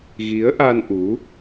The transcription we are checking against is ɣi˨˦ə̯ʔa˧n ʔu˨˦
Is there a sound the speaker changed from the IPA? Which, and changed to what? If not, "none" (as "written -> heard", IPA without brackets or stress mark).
none